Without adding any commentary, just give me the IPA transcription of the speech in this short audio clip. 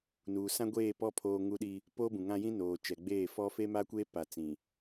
nuː˨sã˦ɡʷeː˦˨ pɔ˦ pʰoː˦ŋu˦ɗi˦ | po˦bũ˨ŋã˦jĩ˦ noː˨t͡ʃɛ˨ɡ͡beː˦˨fɔ˦ fe˦ma˦kʷeː˦pa˨ t͡sĩ˨

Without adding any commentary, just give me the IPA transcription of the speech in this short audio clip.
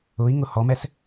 ʊi̯ ŋʊhɔmɛs

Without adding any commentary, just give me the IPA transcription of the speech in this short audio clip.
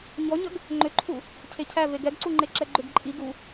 ɲɔɲəɡ | ŋ͡ǃʏǃʰu | cʰecʰæ veɡɛɡǀuŋ͡ǃe ǁɛɡ͡ǃʏɡ ǃʼi ɡu

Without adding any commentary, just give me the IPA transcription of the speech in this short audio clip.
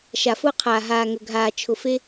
ʃa˨fʊː˧qʰaː˨ ɦaː˨ŋɵ˨ɡʱaː˨ t͡ʃʰʊ˨fe˧

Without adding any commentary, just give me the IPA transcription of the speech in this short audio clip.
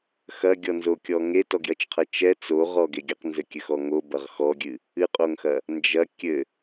xɐɡʲɔnzokʲɔ ŋetɔɡjɐt͡ʃqʰɐ t͡ʃɛ t͡soʁɔɡe ɡʲɐqnzɘkʲɘxɔ ŋobɐʁ xɔɡʲɨ | ɨqʼoŋxɐ | nd͡ʒɐ kʲɘ

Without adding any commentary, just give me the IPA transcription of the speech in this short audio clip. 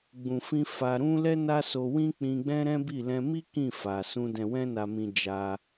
ɡ͡bũ˨fĩ˧ fa˧ɾũ˦ lɛ˦na˦so˧wĩ˦ k͡pĩ˧ɡ͡bɛ̃˦ɾɛ̃˦bi˦˨ lɛ̃˧mi˦ kĩ˦˨fa˨ sũ˧ dɛ̃˨wɛ̃˧na˨mĩ˨ d͡ʒa˧

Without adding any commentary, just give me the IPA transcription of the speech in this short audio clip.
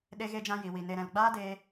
ɗe˧ɣe˧d͡ʒã˧ ji˨wi˨ ne˨ɾɛ̃˨lɡ͡baː˦ de˧

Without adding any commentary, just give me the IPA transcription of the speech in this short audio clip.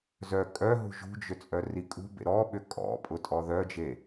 zœ kʼœɦṳ ʒṳd͡ʒʏ t͡sʼœrikʼṳbḛ ɾɔɓʏ kʼɔ̰ pʼʊtʼɔðœd͡ʒe

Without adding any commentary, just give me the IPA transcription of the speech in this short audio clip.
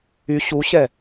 y ɕuɕɛ

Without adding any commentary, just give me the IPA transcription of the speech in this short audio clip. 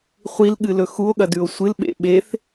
χʷilɠɨlɵ xuo̯ɠɐdʉo̯ sʷɨlɓḛ ɓeθ

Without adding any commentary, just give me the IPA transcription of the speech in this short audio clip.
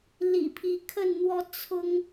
lḭ˨˩pʰi˨˦ kʰə˥˨nn̪wɔ˦ t͡sʰʊ˦ŋ

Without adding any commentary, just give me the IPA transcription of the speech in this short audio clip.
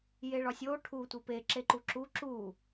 jeɭɒsʲo ʈʰu tʷipe ǁeǃuǁu ǁu

